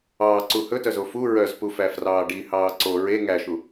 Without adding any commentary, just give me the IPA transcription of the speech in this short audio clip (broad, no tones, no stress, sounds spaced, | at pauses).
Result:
ɑː ǀ u h ɵ t œ z o f u ɹ œ z p u f æ f r ɑː ɖ i h ɑː ǀ o ɹ e ŋ æ ʃ u